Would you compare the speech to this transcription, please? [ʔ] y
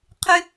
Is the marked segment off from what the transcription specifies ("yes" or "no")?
yes